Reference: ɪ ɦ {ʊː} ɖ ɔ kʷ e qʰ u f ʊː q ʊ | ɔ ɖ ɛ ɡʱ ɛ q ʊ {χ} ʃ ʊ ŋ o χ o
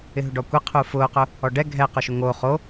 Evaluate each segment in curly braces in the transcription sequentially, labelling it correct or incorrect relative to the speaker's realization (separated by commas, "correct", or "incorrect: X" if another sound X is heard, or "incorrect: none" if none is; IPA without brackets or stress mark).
incorrect: ʊ, incorrect: none